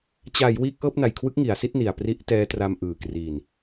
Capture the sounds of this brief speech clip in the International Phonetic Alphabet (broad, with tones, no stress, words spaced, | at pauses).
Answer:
t͡ɕa˩˦j wiː˦˥k̚ʔɤː˥˩p̚na˨˩jkʰwɯ˦˥k̚ ŋi˩˦a̯si˥˩t̚ni˨˩a̯ pri˦˥ʔtɛː˦˥tra˧m ʔɯː˨˩kri˨˩n